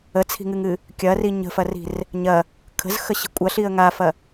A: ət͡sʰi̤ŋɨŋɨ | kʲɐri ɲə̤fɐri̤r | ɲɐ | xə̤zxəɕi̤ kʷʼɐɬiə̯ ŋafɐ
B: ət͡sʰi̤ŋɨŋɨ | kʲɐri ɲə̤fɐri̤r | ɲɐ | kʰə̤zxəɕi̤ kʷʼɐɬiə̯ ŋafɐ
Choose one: B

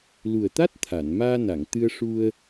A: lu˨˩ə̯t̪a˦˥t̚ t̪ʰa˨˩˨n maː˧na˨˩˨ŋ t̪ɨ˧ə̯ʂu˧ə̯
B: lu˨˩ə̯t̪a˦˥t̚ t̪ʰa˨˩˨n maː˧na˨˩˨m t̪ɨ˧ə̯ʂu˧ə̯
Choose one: A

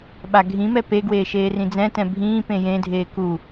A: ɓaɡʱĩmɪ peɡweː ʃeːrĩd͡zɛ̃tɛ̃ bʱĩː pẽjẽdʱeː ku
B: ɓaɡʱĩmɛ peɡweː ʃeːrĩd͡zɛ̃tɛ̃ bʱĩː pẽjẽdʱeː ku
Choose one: B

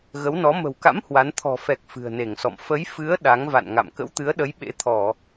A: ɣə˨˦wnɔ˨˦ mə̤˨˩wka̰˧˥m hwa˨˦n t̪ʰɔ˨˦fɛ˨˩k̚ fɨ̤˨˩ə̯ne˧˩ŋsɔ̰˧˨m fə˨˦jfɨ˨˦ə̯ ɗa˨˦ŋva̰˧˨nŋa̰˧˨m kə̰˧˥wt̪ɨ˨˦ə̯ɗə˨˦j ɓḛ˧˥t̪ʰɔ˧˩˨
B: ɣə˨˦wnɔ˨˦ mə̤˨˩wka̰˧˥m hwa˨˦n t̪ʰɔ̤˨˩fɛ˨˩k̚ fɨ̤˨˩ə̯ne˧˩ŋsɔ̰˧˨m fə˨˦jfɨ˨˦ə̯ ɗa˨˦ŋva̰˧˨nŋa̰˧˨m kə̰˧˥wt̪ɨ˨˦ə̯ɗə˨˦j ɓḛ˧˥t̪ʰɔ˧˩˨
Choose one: B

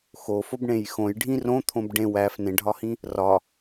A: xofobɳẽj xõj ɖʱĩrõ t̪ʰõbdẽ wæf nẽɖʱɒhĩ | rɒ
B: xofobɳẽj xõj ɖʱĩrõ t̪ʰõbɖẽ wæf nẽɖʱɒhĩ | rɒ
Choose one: B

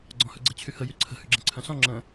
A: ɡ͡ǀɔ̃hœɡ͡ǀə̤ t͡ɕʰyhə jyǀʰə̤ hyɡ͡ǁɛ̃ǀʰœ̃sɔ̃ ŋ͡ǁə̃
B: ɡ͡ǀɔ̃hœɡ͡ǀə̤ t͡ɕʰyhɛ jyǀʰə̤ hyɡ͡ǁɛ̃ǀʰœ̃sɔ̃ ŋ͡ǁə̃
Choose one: A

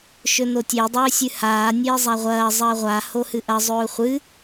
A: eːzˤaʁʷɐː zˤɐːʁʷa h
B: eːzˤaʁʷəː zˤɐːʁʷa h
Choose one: A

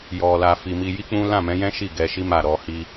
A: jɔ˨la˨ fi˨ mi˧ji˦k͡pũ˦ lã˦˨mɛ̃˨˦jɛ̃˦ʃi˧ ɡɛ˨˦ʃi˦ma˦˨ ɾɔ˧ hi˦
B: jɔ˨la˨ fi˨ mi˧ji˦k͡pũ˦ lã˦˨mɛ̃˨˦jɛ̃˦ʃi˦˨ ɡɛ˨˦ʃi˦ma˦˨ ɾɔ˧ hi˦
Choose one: B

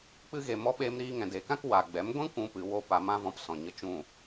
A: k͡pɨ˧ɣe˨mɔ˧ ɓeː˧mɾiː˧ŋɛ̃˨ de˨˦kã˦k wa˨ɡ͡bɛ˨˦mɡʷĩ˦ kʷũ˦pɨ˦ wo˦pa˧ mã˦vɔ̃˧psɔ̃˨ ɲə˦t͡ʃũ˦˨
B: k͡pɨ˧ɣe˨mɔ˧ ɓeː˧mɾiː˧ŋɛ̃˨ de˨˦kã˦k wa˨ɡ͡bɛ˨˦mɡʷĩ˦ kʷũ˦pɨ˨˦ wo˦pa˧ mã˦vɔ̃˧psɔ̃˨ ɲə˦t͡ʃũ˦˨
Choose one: B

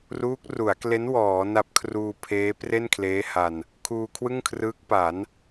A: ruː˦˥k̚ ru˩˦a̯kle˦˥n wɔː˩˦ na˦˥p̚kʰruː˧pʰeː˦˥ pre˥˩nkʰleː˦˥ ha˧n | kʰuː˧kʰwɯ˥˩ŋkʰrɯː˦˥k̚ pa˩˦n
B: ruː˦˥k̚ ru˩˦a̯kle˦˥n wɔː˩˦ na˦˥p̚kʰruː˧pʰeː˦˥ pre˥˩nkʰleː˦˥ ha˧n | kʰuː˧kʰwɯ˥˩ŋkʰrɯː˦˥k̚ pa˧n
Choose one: A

